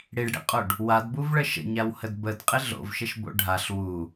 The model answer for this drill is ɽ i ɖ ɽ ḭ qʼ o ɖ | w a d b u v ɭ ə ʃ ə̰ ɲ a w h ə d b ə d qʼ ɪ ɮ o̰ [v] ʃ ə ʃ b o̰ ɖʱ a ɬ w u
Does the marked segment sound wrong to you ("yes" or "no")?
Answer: no